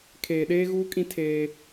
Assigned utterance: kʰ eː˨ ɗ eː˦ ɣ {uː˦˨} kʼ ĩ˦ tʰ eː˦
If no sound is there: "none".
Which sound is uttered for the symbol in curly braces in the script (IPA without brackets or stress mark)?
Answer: uː˦